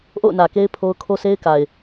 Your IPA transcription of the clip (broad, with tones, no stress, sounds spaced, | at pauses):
ʔ o̰˦˨ ʊ̯ n ä˨ k e˦ ɪ̯ pʰ o˦ ʊ̯ kʰ o˦ sʰ e˦ ɪ̯ k a˨ ɪ̯